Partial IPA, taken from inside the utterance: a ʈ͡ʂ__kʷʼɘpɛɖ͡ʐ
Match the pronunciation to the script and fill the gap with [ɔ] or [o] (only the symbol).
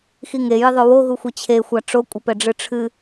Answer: o